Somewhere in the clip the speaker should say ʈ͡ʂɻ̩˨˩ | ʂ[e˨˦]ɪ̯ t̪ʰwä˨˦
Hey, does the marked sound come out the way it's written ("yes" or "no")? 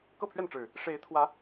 yes